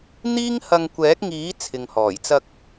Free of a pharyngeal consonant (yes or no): yes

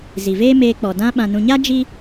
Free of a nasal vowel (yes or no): no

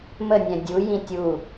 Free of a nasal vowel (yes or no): no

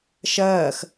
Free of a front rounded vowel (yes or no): yes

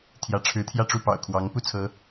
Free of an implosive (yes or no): yes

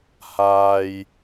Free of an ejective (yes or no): yes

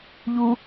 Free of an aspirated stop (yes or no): yes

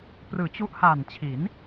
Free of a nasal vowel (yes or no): yes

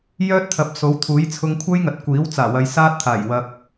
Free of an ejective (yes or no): yes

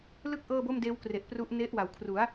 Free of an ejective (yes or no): yes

